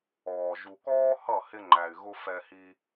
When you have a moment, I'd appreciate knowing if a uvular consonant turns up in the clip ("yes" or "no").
no